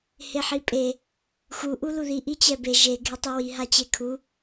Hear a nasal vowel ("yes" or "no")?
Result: no